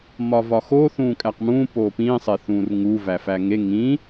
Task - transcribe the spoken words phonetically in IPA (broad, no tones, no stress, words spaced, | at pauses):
mɒvɒxo θũːkʼæqmũː poːpĩːsˤeθũːr ŋu væfæŋe ŋĩ